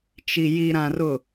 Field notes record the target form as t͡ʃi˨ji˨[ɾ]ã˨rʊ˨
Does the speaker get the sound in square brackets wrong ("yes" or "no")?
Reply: no